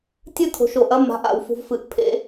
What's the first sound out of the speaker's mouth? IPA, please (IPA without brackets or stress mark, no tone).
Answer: tʲ